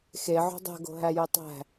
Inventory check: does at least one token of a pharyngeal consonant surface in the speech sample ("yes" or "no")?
yes